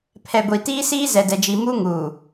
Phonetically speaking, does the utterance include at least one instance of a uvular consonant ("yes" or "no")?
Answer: no